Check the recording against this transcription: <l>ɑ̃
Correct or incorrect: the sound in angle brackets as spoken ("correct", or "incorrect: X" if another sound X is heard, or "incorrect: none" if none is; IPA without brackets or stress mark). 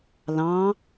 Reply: correct